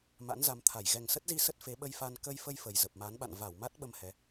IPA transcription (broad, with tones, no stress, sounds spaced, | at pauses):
m a̰˧˥ n z a˨˦ m t̪ʰ a˧˩ j ɣ ɛ˨˩ ŋ s ə˦˥ t̚ z i˧ s ə˦˥ t̚ f e˨˦ ɓ ə˧ j f a˧ n k ə˧ j f ə˧ j f ə˨˩ j z ə˨˩ p̚ m a˨˦ n ɓ a̰˧˨ n v a˧˩ w m a˦˥ t̚ ɓ ə˧ m h ɛ˨˦